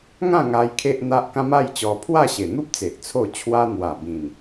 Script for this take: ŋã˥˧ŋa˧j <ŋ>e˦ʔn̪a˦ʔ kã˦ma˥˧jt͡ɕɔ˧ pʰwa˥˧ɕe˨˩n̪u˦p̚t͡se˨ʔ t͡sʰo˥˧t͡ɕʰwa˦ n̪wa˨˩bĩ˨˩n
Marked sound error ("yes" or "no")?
yes